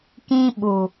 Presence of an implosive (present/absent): present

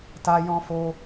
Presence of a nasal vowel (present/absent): present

